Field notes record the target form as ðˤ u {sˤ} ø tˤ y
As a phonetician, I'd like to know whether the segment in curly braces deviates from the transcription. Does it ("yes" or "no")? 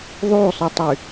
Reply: no